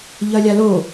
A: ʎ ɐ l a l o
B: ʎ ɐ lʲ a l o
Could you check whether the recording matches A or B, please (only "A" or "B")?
B